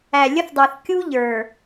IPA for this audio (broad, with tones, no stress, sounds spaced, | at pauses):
æ˨ lʲ ə˦ θ dˤ əː˨ θ kʲ u˦ ʎ ə˞˨